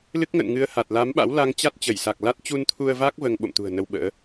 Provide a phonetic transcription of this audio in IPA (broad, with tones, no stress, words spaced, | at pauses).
lɨ˦˥k̚ŋə̰ː˧˨nŋɨ˨˦ə̯ ha˨˩t̚la˨˦mɓa̰˧˥w la˧ŋt͡ɕa˦˥t̚t͡ɕə˧˩j sa˨˩k̚la˦˥t̚ t͡ɕu˧nt̪ʰu˧ə̯va˦˥k̚ vəː˧ŋɓo̰˧˨mt̪ṳ˨˩ə̯ nə˧wɓə̰ː˧˥